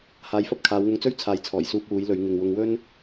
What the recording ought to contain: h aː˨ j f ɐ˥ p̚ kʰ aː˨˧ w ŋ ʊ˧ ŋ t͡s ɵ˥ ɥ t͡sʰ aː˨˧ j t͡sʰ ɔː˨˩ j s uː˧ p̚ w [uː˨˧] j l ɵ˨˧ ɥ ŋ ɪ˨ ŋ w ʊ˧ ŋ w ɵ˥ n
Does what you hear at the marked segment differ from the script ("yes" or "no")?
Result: no